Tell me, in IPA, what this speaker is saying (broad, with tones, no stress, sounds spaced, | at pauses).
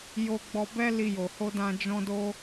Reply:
j o˧ ɡ͡b ɔ˧ b ɛ˦ l i˧ j o˨ h o˧ d ã˧ d͡ʒ ɔ̃˦ d o˦